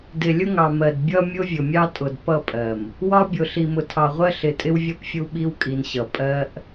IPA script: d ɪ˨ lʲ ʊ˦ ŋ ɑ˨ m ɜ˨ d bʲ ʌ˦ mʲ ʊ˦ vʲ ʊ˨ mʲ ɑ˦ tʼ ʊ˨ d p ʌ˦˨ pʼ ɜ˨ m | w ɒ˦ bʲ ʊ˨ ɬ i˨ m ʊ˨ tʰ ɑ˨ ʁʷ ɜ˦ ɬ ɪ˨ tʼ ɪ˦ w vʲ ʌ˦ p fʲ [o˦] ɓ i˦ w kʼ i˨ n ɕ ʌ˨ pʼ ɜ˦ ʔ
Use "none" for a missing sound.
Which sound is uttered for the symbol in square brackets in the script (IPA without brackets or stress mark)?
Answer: u˦